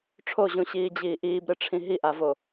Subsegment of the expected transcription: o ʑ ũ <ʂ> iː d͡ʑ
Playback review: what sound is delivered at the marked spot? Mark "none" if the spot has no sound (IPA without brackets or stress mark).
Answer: ɕ